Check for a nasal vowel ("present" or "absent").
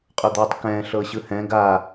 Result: present